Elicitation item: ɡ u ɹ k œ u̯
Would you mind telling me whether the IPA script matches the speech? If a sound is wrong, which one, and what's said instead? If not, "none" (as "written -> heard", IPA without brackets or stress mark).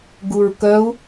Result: none